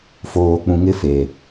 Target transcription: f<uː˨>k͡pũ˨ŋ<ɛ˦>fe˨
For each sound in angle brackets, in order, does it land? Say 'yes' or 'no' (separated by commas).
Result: no, no